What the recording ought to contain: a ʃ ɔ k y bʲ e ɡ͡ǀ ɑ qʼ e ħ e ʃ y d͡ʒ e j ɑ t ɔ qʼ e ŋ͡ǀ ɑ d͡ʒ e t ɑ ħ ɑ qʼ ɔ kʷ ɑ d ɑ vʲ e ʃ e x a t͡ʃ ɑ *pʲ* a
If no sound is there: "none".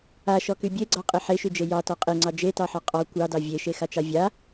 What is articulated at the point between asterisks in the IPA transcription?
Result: vʲ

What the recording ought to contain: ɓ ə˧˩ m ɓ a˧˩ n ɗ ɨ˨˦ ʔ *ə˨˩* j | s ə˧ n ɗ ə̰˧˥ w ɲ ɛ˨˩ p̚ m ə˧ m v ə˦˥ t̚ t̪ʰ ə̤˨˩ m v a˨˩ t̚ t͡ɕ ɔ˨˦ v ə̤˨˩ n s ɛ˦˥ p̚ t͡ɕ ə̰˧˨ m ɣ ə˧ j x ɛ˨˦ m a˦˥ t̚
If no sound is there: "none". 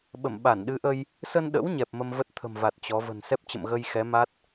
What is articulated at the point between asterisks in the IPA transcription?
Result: ə˧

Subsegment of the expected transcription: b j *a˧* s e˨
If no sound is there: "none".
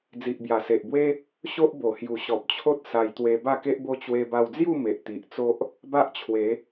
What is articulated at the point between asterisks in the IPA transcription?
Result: a˨˩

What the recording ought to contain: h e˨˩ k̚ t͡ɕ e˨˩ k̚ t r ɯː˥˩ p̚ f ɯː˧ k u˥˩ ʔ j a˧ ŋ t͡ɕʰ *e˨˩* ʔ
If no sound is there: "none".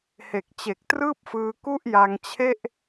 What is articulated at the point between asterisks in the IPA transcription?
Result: e˥˩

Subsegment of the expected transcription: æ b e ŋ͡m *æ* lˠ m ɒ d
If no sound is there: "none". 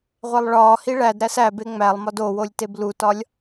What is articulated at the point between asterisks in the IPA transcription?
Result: æ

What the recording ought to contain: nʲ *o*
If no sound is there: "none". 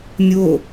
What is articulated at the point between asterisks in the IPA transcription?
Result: o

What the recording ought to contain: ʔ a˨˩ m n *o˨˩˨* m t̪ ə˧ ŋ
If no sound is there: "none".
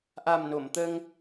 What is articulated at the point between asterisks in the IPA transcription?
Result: o˨˩˨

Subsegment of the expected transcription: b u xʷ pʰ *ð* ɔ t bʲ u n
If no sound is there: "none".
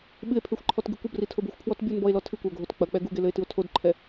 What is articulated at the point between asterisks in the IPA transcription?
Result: w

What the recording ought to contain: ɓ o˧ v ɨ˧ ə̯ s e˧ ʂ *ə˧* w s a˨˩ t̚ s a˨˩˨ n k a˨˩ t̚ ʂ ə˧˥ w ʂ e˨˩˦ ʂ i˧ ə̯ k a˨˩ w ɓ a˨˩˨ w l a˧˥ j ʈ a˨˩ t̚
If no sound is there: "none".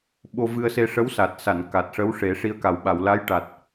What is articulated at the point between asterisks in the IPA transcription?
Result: ə˧˥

